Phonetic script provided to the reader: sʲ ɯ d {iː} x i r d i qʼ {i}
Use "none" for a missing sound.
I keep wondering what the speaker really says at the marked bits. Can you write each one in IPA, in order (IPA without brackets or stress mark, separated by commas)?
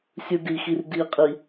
i, i